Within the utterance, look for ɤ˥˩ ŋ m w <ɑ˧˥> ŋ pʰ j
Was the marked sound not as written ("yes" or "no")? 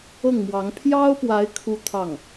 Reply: no